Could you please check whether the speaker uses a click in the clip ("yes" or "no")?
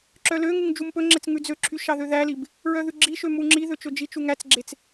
yes